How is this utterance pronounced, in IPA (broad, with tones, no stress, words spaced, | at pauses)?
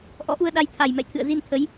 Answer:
ʔɔ̰˧˥ʔu˧ə̯ɗa˧jt̪ʰa˨˩j mɛ̰˧˨jt̪ʰɨ̰˧˨ə̯zi˧nt̪ʰə˨˦j